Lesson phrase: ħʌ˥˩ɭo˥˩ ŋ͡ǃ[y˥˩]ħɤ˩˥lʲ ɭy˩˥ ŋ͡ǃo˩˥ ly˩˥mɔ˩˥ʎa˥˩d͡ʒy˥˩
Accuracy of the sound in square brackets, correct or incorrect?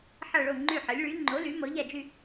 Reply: correct